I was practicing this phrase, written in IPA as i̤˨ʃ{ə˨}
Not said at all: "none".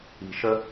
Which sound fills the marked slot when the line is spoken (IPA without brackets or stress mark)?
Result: ə˦